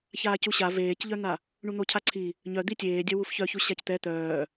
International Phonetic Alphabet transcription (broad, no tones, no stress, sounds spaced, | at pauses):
ç aː c u ɕ a v eː c ʎ œ n̪ a | ɳ u n̪ o cʰ a ǀʰ i | ɲ œ d̪ i tʲ eː dʲ œ w u f ç œ ç u ɕ a c t̪ ɛ t̪ œː